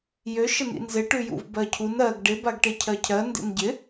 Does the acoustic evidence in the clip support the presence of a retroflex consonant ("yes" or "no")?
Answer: yes